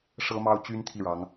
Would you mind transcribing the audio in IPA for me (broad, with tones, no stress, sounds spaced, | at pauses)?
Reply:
ʂ ɤ˥ m ɑ˥ ʊ̯ t͡ɕ y˥ n t̪ʰ i˥˩ ɻ ɑ˧˥ ŋ